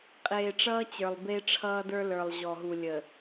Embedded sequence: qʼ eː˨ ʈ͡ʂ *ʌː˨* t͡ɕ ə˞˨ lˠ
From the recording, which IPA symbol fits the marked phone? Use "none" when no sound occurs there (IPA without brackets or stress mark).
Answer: ʌː˦